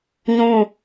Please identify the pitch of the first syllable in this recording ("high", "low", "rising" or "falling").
falling